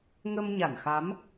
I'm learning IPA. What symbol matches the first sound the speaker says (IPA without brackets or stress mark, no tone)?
ŋ